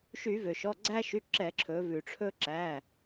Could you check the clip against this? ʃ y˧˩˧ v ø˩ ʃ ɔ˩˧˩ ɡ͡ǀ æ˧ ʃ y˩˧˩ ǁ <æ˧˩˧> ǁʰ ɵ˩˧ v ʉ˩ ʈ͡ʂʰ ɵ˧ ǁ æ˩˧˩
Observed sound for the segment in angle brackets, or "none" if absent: ɛ˧˩˧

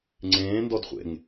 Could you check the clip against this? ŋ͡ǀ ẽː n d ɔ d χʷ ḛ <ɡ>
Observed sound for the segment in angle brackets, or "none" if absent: ŋ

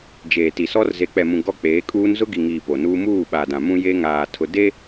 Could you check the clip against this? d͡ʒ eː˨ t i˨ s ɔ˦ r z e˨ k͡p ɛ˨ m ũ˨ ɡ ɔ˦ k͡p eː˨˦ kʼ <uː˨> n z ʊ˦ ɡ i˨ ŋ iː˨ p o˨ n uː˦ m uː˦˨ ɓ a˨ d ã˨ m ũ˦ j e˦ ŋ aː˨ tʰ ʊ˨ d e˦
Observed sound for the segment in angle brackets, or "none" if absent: uː˦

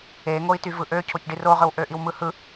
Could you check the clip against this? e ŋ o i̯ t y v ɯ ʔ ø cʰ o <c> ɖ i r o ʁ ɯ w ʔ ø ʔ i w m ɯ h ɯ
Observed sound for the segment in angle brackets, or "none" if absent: c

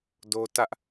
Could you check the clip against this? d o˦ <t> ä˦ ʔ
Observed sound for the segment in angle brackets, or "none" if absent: t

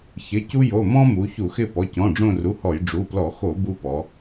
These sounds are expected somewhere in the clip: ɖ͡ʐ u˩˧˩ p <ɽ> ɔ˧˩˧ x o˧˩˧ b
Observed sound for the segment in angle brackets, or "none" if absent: l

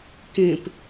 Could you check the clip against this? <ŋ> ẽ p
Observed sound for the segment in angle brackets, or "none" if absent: k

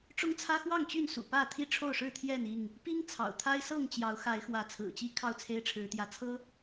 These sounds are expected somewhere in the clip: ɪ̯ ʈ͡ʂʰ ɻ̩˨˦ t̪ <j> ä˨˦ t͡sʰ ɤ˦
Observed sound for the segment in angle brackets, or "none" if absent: j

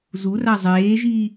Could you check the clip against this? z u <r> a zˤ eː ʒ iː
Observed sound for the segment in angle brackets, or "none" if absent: r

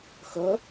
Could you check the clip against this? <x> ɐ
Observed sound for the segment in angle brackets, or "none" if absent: x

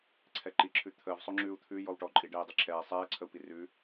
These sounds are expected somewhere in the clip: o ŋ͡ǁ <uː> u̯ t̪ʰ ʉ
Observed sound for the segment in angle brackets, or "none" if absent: ʉː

